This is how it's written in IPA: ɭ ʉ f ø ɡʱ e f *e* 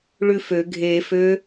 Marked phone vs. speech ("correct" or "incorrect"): incorrect